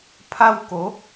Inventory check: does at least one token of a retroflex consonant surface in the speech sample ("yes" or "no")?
no